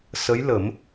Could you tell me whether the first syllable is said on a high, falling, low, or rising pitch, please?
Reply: rising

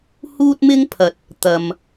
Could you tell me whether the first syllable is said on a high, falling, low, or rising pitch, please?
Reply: high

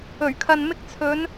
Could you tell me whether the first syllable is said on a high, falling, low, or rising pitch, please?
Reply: low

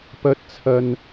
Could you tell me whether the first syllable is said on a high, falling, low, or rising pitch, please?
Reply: rising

